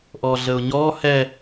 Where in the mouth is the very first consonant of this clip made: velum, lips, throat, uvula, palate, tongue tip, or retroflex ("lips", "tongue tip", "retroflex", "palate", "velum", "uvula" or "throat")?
throat